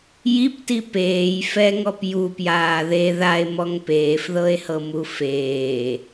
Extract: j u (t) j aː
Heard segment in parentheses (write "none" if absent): p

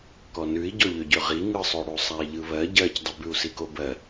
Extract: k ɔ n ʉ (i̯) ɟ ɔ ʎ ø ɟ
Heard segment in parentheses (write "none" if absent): i̯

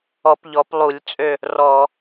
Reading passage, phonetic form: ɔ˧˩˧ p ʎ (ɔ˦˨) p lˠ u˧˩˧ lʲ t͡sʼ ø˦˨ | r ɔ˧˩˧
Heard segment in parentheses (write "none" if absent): ɔ˩˧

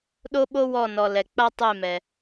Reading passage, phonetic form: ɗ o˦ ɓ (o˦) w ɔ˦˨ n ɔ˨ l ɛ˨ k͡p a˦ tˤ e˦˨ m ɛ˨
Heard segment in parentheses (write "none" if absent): o˦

